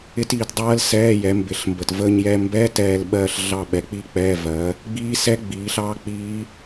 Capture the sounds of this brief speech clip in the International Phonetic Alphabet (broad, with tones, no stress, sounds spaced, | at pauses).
ɪ˦˥ t iː˨˦ t dˤ ɜː˦˥ l s ɛː˧˥˧ j ɛ˨˦ m b ɪ˧˩ ɬ m b ə˧˩ t v əː˥˧ ɲ j ɛ˥˧ m b ɛ˧˥˧ t ɛː˥˧ l ɓ ɜː˥˧ ɬ ɮ ɑ˥˧ ɓ ɛ˨˦ k͡p iː˥˧ k͡p ɛː˧˥˧ v ɜ˨˦ | ɡ͡b iː˦˥ s ɛ˦˥ ɡ͡b iː˨˦ ɬ ɑː˦˥ k͡p iː˦˥